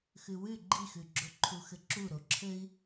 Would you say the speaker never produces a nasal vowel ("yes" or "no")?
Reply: yes